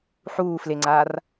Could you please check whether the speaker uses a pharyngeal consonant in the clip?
yes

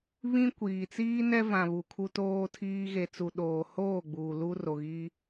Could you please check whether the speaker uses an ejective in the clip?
no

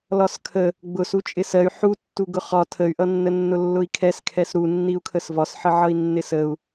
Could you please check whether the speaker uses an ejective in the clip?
yes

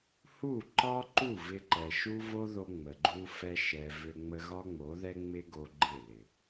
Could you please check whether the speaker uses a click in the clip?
yes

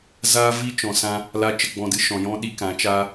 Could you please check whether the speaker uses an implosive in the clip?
yes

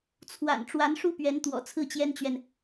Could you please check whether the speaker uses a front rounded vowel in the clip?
no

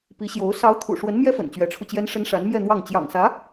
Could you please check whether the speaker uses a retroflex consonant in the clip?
yes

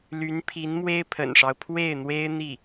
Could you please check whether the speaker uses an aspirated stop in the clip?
yes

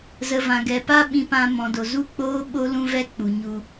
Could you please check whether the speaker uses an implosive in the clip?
yes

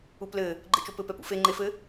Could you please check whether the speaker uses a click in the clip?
yes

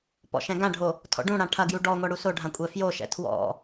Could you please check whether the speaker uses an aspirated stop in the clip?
yes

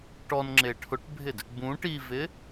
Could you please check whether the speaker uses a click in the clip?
yes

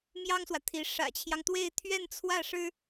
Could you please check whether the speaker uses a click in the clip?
no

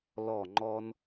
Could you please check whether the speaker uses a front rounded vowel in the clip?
no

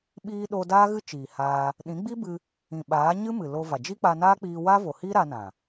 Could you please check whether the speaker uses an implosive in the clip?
yes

